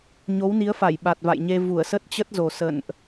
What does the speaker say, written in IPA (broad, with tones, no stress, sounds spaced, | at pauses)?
ɲ o˨˦ w n i˨˦ ə̯ f a˧˩ j ɓ a˨˩ t̚ v a̰˧˨ j ɲ e˧ v u˧˩ ə̯ s ə˦˥ t̚ t͡ɕ ə˦˥ t̚ z o˨˩ s ə̰˧˨ n ʔ